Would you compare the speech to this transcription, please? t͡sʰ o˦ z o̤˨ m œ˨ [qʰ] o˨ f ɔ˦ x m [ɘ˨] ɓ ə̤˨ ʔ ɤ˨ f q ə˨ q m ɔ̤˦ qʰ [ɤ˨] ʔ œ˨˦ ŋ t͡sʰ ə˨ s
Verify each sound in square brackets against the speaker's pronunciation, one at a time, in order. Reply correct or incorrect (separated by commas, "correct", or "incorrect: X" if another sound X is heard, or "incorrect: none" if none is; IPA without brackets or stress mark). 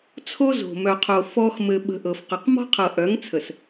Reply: correct, correct, correct